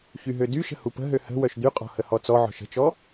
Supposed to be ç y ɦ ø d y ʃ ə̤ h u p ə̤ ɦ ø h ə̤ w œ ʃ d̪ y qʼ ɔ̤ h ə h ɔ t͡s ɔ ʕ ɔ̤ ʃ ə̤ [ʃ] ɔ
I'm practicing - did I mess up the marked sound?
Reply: yes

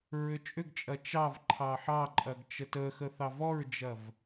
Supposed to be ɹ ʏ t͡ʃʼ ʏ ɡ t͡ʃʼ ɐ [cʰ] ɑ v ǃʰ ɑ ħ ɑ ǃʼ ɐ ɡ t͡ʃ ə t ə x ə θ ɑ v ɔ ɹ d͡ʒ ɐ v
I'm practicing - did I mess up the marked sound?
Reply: yes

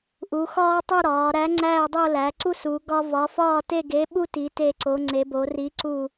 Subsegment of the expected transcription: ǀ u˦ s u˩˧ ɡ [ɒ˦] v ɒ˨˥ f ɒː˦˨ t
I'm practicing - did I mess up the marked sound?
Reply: no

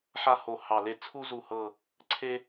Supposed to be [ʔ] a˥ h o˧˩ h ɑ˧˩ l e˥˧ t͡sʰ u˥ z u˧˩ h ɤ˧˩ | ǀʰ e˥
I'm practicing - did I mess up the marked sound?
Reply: yes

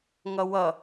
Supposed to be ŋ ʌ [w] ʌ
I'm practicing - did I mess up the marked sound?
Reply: no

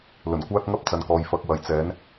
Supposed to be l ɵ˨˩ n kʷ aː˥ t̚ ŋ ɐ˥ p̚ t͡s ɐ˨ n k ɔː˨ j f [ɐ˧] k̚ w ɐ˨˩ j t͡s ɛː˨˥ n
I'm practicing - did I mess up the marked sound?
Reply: yes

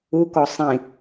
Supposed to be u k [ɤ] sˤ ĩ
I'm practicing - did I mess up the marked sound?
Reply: yes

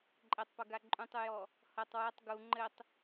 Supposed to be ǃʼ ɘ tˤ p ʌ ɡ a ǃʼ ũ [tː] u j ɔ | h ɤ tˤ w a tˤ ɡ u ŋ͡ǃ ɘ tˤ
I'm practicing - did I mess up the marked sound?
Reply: yes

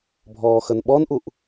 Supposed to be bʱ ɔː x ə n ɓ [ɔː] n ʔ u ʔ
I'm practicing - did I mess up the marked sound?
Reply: yes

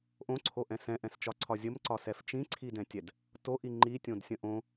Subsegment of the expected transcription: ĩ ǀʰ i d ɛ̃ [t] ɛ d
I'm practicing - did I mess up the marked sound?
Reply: yes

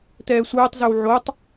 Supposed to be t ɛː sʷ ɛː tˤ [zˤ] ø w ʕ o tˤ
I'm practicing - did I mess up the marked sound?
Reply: yes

